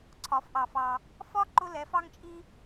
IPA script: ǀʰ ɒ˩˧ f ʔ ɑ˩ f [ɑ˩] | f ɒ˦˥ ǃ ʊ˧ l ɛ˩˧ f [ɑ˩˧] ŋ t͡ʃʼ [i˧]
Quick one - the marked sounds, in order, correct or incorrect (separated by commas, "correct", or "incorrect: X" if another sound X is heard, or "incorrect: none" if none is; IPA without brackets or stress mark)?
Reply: correct, incorrect: ɑ˧, correct